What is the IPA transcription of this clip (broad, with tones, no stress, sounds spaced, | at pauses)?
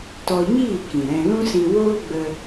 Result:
t ɔ˧ ɲ iː˦˨ k ĩ˨ ɾ ɛ̃˧ l ũ˦ s ĩ˧ w oː˦ ɡ͡b ə˧